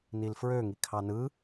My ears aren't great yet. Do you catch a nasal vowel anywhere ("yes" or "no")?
no